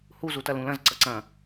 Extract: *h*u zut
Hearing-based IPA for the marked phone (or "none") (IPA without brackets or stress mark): h